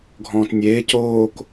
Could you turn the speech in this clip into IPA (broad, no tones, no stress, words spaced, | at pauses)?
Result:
ɡʱɔ̃ːtnʲeː coːk